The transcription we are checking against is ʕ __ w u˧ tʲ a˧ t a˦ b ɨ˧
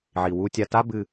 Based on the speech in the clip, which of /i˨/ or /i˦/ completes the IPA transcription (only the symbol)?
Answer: i˨